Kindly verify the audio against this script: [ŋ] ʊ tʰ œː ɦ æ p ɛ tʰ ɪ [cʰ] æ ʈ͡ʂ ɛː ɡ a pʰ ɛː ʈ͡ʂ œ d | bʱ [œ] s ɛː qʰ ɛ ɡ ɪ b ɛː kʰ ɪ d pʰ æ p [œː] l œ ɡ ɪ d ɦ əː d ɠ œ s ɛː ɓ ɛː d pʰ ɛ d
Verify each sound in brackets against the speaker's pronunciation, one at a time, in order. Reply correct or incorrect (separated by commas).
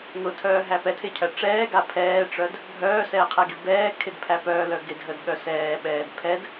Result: correct, correct, incorrect, correct